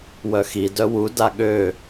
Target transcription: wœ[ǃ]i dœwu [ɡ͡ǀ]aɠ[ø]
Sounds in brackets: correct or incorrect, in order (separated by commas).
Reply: incorrect, incorrect, correct